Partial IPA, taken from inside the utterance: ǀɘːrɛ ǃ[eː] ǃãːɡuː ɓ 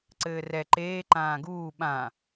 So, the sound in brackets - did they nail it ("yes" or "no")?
yes